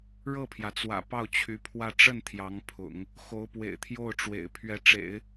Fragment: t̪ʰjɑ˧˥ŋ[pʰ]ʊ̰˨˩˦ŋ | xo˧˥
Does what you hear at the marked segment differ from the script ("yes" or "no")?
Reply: no